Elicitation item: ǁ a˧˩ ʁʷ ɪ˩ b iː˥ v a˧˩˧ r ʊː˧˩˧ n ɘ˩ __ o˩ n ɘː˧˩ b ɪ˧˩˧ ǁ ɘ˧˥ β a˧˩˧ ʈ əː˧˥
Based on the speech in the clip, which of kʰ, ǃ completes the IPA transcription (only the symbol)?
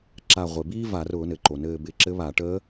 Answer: ǃ